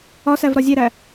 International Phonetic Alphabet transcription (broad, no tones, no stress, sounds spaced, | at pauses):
ɒ s æ v ɾ ɒ zʲ e ɾ æ